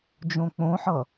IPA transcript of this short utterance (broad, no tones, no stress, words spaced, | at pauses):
d͡ʒõk͡põħʌ